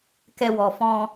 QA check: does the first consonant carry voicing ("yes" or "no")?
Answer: no